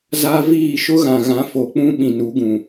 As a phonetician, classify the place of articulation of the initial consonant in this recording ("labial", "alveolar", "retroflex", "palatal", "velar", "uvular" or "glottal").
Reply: alveolar